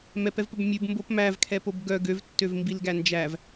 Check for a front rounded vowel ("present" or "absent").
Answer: present